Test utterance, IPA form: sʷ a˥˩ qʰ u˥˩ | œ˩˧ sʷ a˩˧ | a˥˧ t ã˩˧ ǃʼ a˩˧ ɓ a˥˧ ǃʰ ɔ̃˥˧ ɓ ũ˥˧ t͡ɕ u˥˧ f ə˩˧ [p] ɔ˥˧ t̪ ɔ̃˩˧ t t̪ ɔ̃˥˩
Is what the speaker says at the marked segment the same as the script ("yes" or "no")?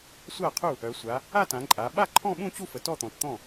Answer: no